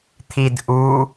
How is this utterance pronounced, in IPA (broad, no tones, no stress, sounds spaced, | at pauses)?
t̪ʰ i d ʔ u